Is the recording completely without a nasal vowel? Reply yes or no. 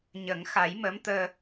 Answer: yes